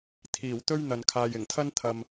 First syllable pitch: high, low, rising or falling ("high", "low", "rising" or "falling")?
low